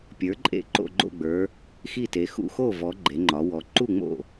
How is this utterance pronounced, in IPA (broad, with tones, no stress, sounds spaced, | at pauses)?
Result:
pʲ ə˞˩˥ ǃʼ ḛ˥˩ ǃ o̰˥˩ ɡ͡ǃ o̰˥˩ ɡ͡b ə˞˩˧ | x i˥˩ t e˩˧ x ṵ˥˩ x o˥˩ v ɔ˩˧ ɡ͡ǃ e˩˧ ŋ͡ǃ ɒ˩˧ w ɔ˩˧ ǃ u˥˩ ŋ͡m o̰˥˩